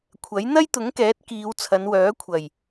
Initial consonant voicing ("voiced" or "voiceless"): voiceless